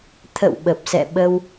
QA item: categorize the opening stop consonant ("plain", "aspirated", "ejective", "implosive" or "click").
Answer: aspirated